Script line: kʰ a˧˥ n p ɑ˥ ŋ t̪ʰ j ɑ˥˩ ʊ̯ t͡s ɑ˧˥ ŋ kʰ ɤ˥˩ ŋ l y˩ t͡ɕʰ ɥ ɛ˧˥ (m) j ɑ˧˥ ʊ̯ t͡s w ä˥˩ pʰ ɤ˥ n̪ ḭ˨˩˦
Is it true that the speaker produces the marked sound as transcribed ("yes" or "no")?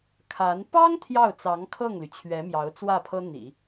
yes